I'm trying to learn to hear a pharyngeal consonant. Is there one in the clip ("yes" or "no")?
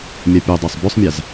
no